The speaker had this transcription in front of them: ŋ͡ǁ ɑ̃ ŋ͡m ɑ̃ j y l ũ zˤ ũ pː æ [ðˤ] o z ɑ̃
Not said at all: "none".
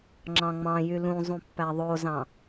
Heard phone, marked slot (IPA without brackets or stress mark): ðˤ